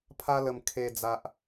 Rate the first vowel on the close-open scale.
open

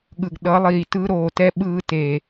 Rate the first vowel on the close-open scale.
close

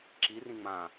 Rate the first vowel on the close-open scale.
close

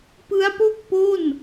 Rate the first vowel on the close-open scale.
close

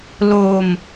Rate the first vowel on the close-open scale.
mid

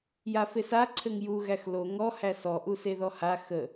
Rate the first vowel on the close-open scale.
open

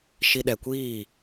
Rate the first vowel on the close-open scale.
close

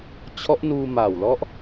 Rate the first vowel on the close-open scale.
mid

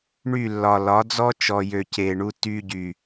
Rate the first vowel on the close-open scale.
close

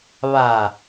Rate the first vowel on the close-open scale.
open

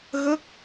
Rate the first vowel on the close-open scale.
mid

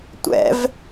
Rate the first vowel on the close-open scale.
mid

